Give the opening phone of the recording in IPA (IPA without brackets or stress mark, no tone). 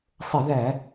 sˤ